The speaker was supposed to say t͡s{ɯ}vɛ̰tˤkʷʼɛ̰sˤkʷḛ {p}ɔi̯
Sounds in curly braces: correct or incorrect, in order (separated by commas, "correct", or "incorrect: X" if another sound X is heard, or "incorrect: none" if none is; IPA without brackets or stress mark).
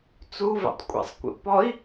incorrect: u, correct